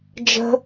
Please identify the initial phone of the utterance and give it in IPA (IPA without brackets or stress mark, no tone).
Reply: d͡ʒ